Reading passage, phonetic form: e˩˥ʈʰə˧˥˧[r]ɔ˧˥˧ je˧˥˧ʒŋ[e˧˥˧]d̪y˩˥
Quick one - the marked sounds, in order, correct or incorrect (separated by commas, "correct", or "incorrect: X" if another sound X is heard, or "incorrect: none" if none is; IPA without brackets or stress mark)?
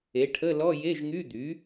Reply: incorrect: l, incorrect: y˧˥˧